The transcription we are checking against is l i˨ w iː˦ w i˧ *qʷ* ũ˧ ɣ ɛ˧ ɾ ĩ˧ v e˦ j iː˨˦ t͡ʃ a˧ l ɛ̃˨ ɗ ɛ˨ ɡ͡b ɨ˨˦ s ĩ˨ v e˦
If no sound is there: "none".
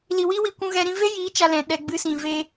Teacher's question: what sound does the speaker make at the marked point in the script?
kʷ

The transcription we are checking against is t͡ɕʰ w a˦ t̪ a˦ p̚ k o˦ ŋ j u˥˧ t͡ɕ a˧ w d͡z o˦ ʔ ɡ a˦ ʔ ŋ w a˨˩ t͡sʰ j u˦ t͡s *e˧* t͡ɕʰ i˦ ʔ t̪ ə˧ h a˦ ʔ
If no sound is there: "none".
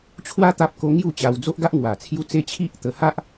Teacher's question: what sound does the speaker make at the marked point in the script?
e˦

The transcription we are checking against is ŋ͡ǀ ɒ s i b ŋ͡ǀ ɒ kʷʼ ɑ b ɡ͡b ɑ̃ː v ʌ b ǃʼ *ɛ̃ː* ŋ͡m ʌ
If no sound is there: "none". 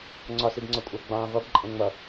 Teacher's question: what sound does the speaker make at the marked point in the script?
ɛ̃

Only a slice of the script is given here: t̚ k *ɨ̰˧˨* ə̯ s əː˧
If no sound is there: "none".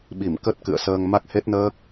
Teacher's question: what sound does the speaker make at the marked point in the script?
ɨ̰˧˨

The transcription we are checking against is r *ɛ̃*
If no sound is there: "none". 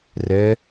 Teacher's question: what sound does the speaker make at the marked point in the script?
ɛ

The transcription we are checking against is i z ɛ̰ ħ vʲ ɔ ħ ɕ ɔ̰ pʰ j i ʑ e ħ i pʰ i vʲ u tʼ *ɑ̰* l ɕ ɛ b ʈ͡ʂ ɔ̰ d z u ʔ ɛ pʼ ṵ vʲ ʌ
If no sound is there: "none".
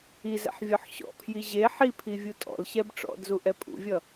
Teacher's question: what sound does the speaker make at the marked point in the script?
ɔ̰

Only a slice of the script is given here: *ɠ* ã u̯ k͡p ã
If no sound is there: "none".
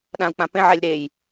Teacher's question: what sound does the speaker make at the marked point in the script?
ɗ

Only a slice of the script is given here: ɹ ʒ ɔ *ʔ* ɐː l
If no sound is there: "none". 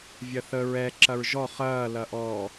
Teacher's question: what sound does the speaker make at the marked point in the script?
χ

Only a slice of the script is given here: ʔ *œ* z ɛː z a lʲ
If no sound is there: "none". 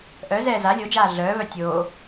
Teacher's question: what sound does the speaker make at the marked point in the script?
œ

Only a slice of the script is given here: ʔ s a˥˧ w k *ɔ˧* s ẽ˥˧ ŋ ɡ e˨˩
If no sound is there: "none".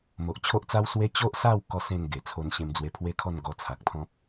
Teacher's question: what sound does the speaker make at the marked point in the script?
ɔ˥˧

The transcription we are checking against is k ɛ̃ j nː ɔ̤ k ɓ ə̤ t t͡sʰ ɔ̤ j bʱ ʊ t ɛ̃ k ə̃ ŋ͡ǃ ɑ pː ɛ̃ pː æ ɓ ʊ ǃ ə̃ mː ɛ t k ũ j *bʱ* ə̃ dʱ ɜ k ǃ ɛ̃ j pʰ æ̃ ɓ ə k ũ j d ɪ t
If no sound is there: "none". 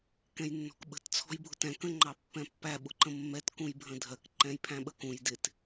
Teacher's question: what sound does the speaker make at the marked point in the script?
bʱ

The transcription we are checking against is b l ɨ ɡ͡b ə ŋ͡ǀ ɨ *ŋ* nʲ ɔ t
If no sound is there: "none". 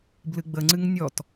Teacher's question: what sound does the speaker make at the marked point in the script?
ŋ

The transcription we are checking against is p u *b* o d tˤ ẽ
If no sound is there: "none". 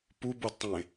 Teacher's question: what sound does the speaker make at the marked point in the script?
b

